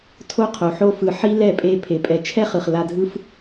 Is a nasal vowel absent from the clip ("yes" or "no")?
yes